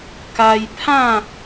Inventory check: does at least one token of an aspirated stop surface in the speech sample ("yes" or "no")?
yes